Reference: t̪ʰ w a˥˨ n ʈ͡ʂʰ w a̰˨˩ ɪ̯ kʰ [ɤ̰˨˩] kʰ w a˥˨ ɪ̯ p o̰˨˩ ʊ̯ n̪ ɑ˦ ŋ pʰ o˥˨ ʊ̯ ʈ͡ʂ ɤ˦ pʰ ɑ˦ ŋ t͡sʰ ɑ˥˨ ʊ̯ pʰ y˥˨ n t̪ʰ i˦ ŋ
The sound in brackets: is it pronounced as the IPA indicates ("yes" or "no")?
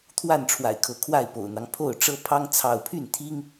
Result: no